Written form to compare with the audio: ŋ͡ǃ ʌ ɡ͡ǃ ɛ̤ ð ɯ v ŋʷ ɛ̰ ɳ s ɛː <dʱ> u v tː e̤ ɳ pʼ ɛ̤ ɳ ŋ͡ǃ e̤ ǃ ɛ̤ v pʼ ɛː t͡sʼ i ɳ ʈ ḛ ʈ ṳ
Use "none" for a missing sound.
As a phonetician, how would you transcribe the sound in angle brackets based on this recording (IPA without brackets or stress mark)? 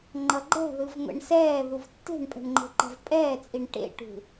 ð